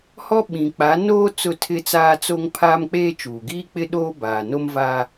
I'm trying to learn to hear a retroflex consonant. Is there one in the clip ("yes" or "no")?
no